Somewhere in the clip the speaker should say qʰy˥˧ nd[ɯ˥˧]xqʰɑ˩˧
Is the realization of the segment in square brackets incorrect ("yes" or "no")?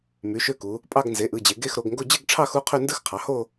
no